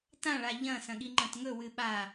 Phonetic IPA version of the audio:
t ã ɭ a ʎ ɐ̃ s ɐ̃ ɠ i ŋ͡ǃ ɐ̃ t ŋ ɵ w ɨ ɓ a

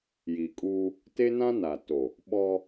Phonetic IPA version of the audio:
j i˨ kʼ uː˦ | t e˦ n ã˦ n a˨ t o˨ | ɓ ɔ˦

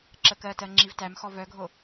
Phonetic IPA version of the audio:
ǁ ə k ɜ t ɜ ŋ͡ǁ i v t æ m x ɔ v œ ɡʱ o

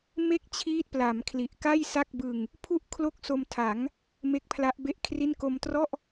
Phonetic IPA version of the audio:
m e˥˩ k̚ t͡ɕʰ iː˦˥ t̚ p l a˩˦ m kʰ l i˨˩ ʔ k a˥˩ j s a˥˩ k̚ b ɯ˧ ŋ | pʰ u˦˥ ʔ kʰ l o˥˩ k̚ s o˧ m tʰ a˩˦ ŋ | m e˦˥ k̚ pʰ l a˦˥ ʔ b e˥˩ ʔ kʰ r i˥˩ n k o˧ m t r ɔ˥˩ ʔ

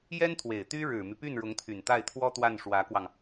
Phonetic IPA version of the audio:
j ɛ˥ n t̪ʰ w e˨˩ ɪ̯ t̪ y˥ ɻ ɻ̩˨˩ m y˦ p y˥˩ n ɻ ʊ˧˥ ŋ t̪ʰ y˨˩ n t̪ a˥˩ ɪ̯ t̪ʰ w ɔ˥ t̪ w a˥˩ n ʂ w ä˧˥ k w ɑ˧ ŋ

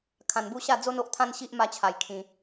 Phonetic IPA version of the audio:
kʰ ã˧ n b u˥˧ ɕ a˥˧ d͡z o˦ n o˦ ʔ t̪ʰ ã˦ n ɕ i˦ ʔ m a˦ t͡ɕʰ a˧ j kʰ ĩ˧

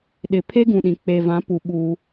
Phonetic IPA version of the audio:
ɗ ɪ˨ pʰ e˦ ɡ ũ˨ ɗ ĩ˨ k͡p e˨ v ã˨˦ p u˨ ɓ u˦

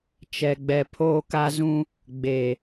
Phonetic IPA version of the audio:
t͡ʃ ɛ˨ ɡ͡b ɛ˨ pʰ oː˦ k a˦ z ũ˦ | ɡ͡b e˨

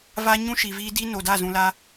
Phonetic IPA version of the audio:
v a˦ ɲ ũ˦ ʃ i˨ v iː˦ d i˦ n o˨ d a˦˨ z ũ˨ l a˦

